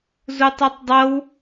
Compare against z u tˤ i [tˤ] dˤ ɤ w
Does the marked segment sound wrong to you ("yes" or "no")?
no